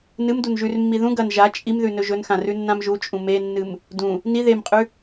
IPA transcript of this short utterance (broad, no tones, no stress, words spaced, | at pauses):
nɨm dunʒʉrmːi ðũ ɡɐn ʒa t͡ʃʼimðʉ nɵʒɵnxã rʉnːãmʒut͡ʃʼũ menːɨm | dũ | ni ðemqʼʉ